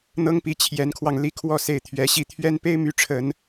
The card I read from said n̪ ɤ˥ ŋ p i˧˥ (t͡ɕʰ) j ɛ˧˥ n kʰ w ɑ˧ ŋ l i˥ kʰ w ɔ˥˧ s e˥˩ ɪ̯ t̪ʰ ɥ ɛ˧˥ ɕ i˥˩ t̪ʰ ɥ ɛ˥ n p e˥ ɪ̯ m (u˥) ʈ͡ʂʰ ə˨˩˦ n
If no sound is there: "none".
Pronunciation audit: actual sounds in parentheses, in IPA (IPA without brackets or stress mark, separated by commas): t͡ɕʰ, y˥